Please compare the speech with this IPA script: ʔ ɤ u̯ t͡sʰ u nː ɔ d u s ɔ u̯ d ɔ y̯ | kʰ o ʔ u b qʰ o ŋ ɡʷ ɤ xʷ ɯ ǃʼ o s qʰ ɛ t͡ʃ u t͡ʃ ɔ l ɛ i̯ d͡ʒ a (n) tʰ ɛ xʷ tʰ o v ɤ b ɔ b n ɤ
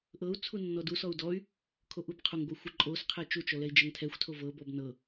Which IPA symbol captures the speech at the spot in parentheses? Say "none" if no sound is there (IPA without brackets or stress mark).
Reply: ŋ